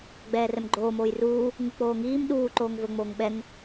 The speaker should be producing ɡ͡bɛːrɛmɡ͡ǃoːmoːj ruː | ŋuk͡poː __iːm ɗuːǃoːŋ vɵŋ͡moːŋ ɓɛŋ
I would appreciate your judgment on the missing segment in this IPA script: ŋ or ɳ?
ŋ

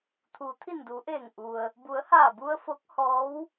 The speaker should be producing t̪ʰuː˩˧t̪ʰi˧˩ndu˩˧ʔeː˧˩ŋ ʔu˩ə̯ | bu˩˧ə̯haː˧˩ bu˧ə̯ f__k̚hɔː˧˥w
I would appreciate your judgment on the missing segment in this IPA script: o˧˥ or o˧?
o˧˥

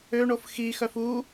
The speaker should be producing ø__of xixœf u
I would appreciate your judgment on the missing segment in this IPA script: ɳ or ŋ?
ɳ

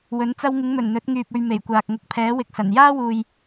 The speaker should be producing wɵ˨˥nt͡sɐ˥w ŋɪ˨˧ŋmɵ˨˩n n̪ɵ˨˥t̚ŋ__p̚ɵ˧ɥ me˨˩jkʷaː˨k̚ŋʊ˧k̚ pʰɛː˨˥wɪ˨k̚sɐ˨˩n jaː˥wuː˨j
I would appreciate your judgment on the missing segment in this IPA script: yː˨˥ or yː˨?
yː˨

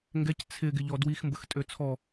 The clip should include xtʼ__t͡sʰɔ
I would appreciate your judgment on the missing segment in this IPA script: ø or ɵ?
ø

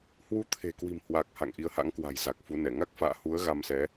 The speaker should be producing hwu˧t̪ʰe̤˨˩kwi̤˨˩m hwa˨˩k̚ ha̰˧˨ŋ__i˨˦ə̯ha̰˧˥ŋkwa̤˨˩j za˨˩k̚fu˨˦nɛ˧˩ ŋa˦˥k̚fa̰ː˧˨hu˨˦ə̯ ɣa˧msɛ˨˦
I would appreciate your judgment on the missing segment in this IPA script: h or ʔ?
ʔ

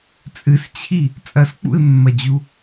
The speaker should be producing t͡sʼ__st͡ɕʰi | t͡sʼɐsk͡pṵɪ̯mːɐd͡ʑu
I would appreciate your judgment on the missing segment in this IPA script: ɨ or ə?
ɨ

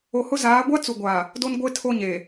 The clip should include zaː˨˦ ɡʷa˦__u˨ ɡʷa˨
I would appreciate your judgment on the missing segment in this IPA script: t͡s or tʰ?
t͡s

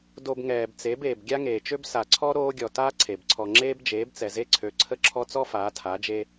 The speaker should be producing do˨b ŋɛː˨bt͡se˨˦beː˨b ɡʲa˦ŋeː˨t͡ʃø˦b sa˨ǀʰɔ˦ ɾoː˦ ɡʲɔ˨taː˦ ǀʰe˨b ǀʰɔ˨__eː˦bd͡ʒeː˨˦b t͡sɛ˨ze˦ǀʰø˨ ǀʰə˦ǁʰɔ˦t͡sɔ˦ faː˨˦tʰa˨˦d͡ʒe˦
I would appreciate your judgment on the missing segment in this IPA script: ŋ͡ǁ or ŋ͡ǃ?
ŋ͡ǁ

